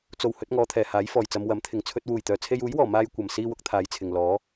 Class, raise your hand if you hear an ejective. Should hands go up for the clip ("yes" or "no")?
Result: no